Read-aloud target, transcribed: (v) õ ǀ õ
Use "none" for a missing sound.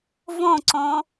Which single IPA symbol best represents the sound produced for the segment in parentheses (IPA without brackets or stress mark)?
v